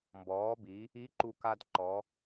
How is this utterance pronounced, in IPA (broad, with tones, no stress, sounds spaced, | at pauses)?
m b ɔː˩˧ b i˩˧ | i˧˥ ǃ u˧ k a˧ d ǃ ɔ˩˧